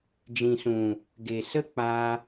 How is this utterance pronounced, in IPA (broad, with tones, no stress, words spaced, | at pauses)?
d͡ʒĩ˨sũ˨ | ɡe˨sə˦ k͡pa˧